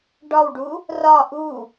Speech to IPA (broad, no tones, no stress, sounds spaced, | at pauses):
ɖ ɒ w ɖ u | r ɒ ʔ u